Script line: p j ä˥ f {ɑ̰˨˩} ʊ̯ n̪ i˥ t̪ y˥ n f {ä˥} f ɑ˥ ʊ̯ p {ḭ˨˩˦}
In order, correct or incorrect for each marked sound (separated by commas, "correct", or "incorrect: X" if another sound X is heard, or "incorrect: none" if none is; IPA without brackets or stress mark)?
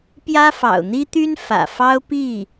correct, incorrect: ä̰˨˩, incorrect: i˥˩